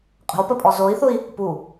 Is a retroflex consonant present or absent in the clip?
absent